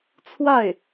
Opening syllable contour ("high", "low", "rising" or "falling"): falling